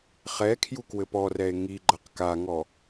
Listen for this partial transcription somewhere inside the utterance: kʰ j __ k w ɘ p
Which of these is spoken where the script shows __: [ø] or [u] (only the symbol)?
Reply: u